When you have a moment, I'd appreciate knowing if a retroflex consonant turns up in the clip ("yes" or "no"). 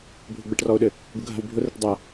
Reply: yes